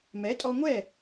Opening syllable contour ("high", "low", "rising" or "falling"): rising